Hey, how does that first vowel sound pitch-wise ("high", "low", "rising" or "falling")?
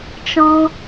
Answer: high